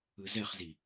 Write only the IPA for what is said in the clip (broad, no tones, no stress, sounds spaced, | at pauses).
ɯ z ɛ χ z i